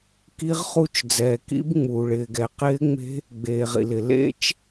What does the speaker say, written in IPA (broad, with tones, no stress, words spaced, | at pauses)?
ki˦˥ʁχu˦˥t͡ʃd͡zɛː˩ kḭ˦˥bŋ͡muː˩ ɭɪː˩ɡɛ˩qɪː˦˥ŋ͡me̤˦˥ | ɡ͡beː˩ʁḭ˩lɪ˩ lḛ˦˥t͡ʃ